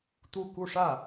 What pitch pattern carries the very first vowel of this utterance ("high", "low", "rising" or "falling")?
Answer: falling